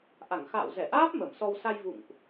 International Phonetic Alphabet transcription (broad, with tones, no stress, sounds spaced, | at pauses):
ʔ a˧˩ ŋ x a̰ː˧˨ w z ɛ˧˩ ʔ aː˦˥ p̚ m ə˧˩ m s ɔ˧ w s a˧ j v ṵ˧˨ ŋ ʔ